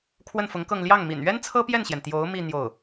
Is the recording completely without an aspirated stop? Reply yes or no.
no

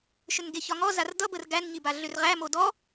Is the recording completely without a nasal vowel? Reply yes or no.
yes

